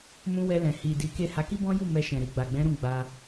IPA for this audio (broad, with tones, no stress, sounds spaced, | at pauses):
m ũ˧ w ɛ˧ l ɛ̃˨ h i˨ d i˨˦ k e˦˨ h a˨˦ k i˦ b ɔ̃˦ j u˦˨ m ɛ˧ ʃ ɛ̃˨ ɾ i˨ ɡ͡b a˨ ɡ͡b ɛ̃˨˦ ɾ ũ˦˨ ɡ͡b a˧